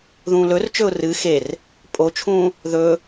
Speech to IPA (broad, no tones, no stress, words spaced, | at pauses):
ðũːlɵrt͡ʃɵʊ̯ rɨ xer | pʼot͡ʃʰũː | ðɵ